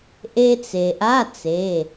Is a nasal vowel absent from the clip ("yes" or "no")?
yes